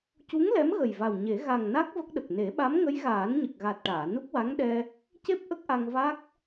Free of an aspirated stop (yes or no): yes